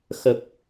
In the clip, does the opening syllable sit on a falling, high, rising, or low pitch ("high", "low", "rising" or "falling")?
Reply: low